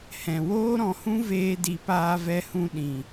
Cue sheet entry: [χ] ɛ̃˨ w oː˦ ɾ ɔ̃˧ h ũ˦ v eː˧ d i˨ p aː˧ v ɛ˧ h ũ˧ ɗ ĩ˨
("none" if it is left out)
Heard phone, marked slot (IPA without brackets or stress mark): h